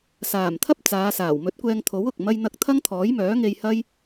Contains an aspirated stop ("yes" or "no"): yes